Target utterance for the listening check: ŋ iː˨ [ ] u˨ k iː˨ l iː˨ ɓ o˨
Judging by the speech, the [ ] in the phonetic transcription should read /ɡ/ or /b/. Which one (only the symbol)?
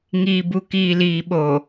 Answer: b